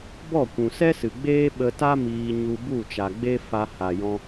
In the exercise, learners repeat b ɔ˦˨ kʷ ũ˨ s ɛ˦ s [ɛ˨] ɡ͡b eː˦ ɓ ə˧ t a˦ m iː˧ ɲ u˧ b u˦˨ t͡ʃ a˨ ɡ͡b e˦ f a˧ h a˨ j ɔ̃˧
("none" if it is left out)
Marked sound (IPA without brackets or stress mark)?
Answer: ɨ˨